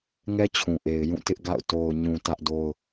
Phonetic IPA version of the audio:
ŋɛ˦t͡ɕʰũ˨ʔe˨ɪ̯ jũ˦˨tɪ˦ʔɡa̰˦˨ʊ̯ to˨ʊ̯ɲũ˨ tä˦ʔdo˦ʊ̯

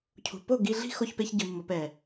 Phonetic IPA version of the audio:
cʰṳ˨po˦˨ɡi˧ɮi̤˦ xo˦çpe˦çɟɯ˧mːo˧p ɛ˨

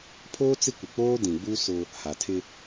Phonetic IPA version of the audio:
pʰoː˦t͡sɪ˦kʷɪ˨ k͡poː˦dĩ˨ɡ͡bu˦ sʊ˦ | ha˨tʰɪ˦

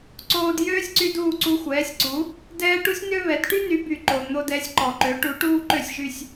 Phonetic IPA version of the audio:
ǀoː˧djøː˥sʲǀy˧d uː˥˩ǀu˧xʷɛː˩˥sʲǀu˩˥ | dɛː˥ ʈu˥sʲnø˥βɛ˩˥d ʈy˥ny˩˥by˩ ǃo˩ n̪o˧dɛ˩˥sʲǃɔ˩ ǃø˩˥ʈu˩˥ ʈuː˥ǃø˥˩sʲʒy˥˩sʲ

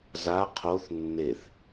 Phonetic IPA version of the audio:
za qʰoθ nːeθ

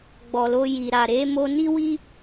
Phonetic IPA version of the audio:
ɡ͡bɔ˨lo˧ji˨ ɾa˨ɾe˨˦ mo˧ni˦wi˦

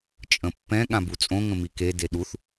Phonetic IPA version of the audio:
t͡ʃʼə̃pːɛ̃ ɠãbut͡sʼõ ŋə̃mike deɗuθ

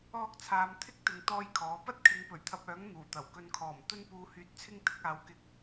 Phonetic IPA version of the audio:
ɔː˥k̚t͡sʰaː˧m t̪ʰɪ˥k̚t̪ɪ˨ŋ t̪ɔː˥jkʰɔː˨˥ pɐ˥t̚kʰɪ˨˧ŋ pɵ˨˩ɥt̪ʰɐ˧p̚œː˨˥ŋ n̪uː˨˩t̪ɐ˨˩w kɵ˧nkʰɔː˨˩m t̪ɵ˥npuː˧hyː˧t̚ t͡sʰɪ˥ŋt̪ɪ˨˥k̚aː˨˧wkɪ˧k̚

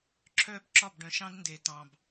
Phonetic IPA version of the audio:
ǁʰœː˦bǁɒ˦˨bɖœ̃˨ʃɑ̃˦d nde˨tɑ̃˨b

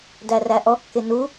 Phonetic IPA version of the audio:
dæræʔɔkːɪ nu

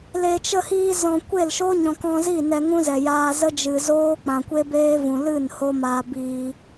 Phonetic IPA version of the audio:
le˨t͡ʃə˧hiː˧zɔ̃˨ kʷe˦˨lʃo˦ɲɔ̃˨k ɔ̃˧zi˦˨ nɛ˧ŋũ˦zɛ˨jaː˧ zə˦d͡ʒɨ˨zoː˦ k͡pã˨kʷe˦beː˦vũ˨ lɨ˦˨n ho˦maː˧ biː˧

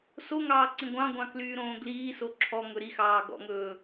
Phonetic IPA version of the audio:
soŋɑː ǀĩɡʷɑ̃ɡʷɑ̃ klyːɾõːɡliːso ǁʰɔ ŋɵɾixɑː ɡɔ̰ŋɵː

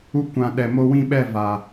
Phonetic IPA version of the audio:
u˧kʷã˨ ɗɛ˨mo˧ wĩ˦˨ɓɛ˦˨ va˨

